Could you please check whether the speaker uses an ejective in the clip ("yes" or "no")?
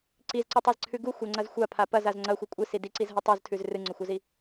yes